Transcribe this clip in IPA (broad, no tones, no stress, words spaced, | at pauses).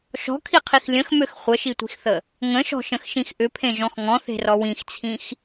ʃɔ̤kʰiqʰix lʲə̃xmøx χʷəʃitʷi̤xθə | ŋə̃ʃɔ̤ʃə̃xʃĩx ʔʏpʰẽʒɔ̃x ŋɔ̃θe̤rɔ wĩxt͡sʰĩx